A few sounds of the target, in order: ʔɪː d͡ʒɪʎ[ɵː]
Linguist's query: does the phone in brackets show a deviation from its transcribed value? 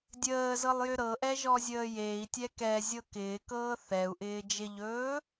no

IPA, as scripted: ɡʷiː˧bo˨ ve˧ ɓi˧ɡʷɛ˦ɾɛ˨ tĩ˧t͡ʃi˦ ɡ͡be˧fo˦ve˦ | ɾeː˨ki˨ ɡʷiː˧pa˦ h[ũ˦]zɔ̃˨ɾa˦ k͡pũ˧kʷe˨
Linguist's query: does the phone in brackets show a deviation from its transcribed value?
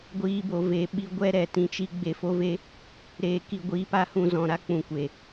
yes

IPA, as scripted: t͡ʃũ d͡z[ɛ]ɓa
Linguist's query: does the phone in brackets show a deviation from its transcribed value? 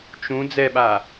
no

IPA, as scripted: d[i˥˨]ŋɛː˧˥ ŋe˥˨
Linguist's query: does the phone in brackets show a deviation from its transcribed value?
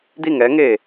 no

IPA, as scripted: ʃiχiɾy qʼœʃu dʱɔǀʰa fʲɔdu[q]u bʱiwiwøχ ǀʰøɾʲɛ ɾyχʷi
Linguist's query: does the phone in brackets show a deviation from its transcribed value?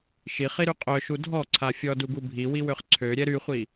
yes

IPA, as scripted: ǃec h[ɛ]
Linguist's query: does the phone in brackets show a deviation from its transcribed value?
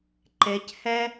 no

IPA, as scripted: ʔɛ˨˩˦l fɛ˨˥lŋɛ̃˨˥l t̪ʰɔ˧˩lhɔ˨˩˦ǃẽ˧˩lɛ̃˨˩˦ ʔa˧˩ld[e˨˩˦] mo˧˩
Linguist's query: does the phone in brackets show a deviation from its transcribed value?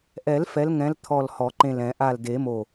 no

